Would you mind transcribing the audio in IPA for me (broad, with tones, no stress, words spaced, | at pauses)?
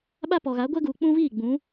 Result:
ɓa˦pɔ˨ɣa˨˦ ɡʷɛ˦ɡuː˨k͡pũ˦viː˦˨ ɡ͡bũ˨˦